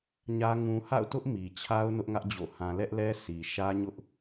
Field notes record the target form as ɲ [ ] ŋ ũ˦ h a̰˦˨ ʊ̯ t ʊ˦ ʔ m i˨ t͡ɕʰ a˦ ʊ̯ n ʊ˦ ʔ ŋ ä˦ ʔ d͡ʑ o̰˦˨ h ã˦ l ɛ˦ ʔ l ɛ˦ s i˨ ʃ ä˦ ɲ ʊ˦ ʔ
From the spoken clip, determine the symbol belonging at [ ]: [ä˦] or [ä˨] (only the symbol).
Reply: ä˦